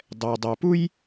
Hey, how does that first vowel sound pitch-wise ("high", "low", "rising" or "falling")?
low